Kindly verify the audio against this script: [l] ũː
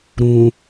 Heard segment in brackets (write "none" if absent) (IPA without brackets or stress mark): ɾ